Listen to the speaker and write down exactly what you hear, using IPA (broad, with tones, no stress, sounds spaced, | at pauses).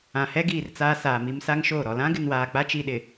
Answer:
ã˨ h ɛ˦ ɡ iː˨ r t͡s aː˦ s aː˨ m i˦ m s a˦ ŋ ʃ oː˦˨ ɾ ɔ˨ l ã˦ ɡ ɪ˨ n w aː˨ k͡p a˦ t͡ʃ i˨ ɗ ɪ˨